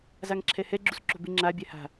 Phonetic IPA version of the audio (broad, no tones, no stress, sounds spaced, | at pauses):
z a ŋ ǁʰ ɛ h ɛ ɡ͡ǁ u s ǁ o̤ b ɪ ŋ͡ǁ a bʲ ɛ h a̤